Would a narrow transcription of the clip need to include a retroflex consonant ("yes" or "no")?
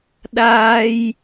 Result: no